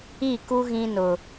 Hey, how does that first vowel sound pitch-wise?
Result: falling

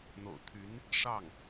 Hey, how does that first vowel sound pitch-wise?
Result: low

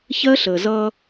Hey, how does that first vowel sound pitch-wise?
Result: high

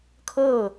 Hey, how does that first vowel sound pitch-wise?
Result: falling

